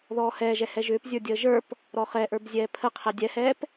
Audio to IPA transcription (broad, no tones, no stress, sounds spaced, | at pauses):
ð ɔː h ɛː ʒ ɛ h ɛ ʒ ʏː p zʲ ə˞ dʲ əː ʒ ə˞ p | ɾ ɔ χ ɛ ʔ ə˞ b zʲ ɛː pʰ ə qʰ ɛ dʲ ɛ h ɛː p